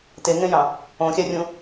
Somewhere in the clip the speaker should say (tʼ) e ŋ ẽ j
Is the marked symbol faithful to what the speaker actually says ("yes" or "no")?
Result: no